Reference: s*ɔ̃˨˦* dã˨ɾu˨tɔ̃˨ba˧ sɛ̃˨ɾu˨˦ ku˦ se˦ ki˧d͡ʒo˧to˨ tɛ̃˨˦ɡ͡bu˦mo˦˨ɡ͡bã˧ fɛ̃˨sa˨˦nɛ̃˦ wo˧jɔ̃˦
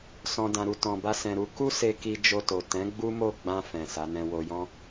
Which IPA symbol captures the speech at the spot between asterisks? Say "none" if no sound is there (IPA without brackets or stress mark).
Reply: ɔ̃˨